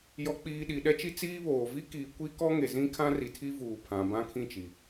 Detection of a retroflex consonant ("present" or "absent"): absent